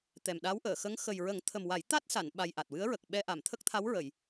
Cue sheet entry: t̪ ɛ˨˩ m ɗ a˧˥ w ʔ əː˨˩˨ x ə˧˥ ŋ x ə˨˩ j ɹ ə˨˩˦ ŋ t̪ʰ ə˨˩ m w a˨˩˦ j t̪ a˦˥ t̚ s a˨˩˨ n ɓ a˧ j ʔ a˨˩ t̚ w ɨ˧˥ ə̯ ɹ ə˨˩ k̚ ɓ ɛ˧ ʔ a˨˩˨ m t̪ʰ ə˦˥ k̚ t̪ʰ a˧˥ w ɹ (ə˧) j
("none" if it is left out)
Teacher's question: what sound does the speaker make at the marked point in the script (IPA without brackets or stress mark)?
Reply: ə˨˩˨